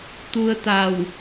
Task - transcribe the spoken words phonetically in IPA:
t̪ u˧ ə̯ t̪ a˧˩ w

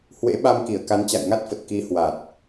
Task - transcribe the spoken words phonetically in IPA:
h w ḛ˧˥ ɓ a˧ m k i˧˩ ə̯ k a˨˦ n t͡ɕ a̰˧˨ j ŋ a˦˥ t̚ f ə˨˩ t̚ k i˨˦ h w a˨˩ t̚

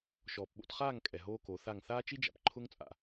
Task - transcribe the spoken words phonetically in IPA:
ʃ ɔː˨ p ɓ o̰˧ t χ aː˦˨ ŋ kʼ ɛ˨ ɦ oː˦ k o˨˦ θ a˦˨ ŋ θ aː˦ t͡ʃ i˦ d͡ʒ a̰˨ p ǃʰ ʊ˦ ŋ t͡sʼ a̰˨

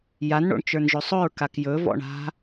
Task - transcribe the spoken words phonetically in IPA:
j a n ɳ o̰ ɳ t͡ʃ ə˞ n ʒ ɵ sˤ ɵ ɹ k a k j ɵ v ɔ̰ ɳ a̤

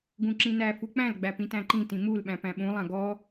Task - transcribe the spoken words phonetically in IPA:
ɡ ũ ǁ ĩ n æ f u k͡p æ̃ l ɡ͡b æ p ĩ t æ̃ ǃ ĩ t ĩ m u l ɓ æ̃ p æ̃ ɓ ũ lˠ ã ɡ ɔ

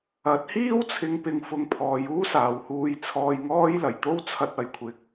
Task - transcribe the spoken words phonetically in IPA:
ɐ˨˥ t̚ h iː˥ w t͡sʰ ɪ˨˧ ŋ p ɪ˨ ŋ f ʊ˨˧ ŋ pʰ ɔː˨˧ j uː˥ s aː˨ w h uː˧ j t͡sʰ ɔː˧ j ŋ ɔː˥ j l ɐ˨˩ j t̪ o˥ w t͡sʰ ɐ˧ t̚ ɐ˨ j kʷʰ ɪ˨˥ k̚

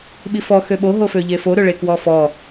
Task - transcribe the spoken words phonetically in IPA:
ɓ i f ɔ x ø ɓ o ɦ o f ø ʎ e f o ɾ ø ɭ e k w ɔ f ɔ

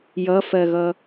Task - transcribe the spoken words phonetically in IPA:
j ʌ f ɜ ɣ ʌ

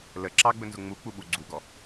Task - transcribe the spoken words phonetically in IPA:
l ə ǁ ɑ ɡ͡b ɵ n z ʊ ŋ͡m u k͡p u ɓ u ɡ͡ǀ u ɡ ɔ

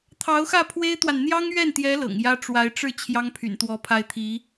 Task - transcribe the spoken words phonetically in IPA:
t̪ʰ ɑ˧˥ ʊ̯ x ä˥˩ pʰ w e˥ ɪ̯ t̪ w a˨ n n̪ j ɑ˥ ŋ ɥ ɛ˥˩ n t̪ j ɛ˧˥ l ɤ̰˨˩ ŋ j ä˥ ʈ͡ʂ w a˧˥ ɪ̯ ʈ͡ʂ ɻ̩˥˩ t͡ɕʰ j ɑ˥ ŋ pʰ y̰˨˩ n t̪ w ɔ˧˥ pʰ a˥˩ ɪ̯ t̪ʰ i˧˥

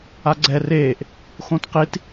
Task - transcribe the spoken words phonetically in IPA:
a ɡ͡ǀ ɛ r eː ʔ | x õ t q i t

